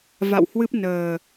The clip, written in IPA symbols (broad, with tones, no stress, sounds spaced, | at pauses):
v a̰˧˨ w h w ɨ˦˥ p̚ n əː˨˩